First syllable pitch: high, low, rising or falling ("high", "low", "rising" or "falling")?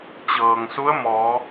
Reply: low